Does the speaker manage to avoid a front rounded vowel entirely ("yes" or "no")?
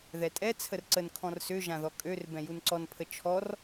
no